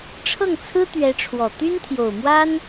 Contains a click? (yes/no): no